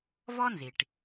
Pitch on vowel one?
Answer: high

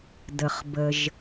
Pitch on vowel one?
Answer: low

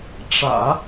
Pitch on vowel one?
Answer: low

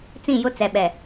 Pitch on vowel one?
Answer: falling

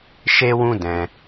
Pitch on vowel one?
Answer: high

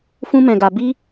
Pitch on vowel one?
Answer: high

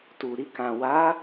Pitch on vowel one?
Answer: low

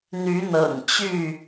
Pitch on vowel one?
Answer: rising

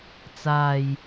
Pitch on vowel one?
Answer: low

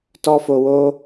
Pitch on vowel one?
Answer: high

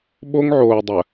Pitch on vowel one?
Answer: high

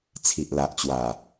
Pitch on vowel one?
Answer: low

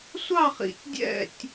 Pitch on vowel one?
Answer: falling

